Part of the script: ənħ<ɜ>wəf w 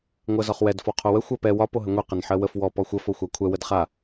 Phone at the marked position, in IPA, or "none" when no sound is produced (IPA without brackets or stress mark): ɜ